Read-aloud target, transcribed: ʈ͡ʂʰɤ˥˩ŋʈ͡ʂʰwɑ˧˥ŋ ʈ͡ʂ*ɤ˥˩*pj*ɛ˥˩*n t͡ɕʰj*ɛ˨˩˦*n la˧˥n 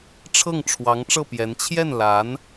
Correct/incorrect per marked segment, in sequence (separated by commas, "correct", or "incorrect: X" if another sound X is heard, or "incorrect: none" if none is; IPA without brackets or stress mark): correct, incorrect: ɛ˧˥, incorrect: ɛ˥˩